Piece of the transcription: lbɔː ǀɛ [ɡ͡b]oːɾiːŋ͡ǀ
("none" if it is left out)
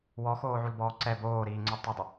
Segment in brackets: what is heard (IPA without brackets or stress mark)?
b